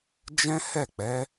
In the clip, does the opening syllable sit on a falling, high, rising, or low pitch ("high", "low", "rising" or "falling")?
high